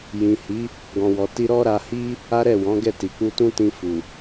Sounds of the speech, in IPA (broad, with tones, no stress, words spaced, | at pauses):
jĩ˨hi˨˦ | ɡɔ̃˨wɔ˨ti˧ ɾɔ˦ɾa˧hi˦ | a˦ɾɛ˦˨wɔ̃˨˦ɡɛ˦˨ ti˨k͡pu˧tũ˦tĩ˧ fu˨